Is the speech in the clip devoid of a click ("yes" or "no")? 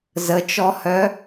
yes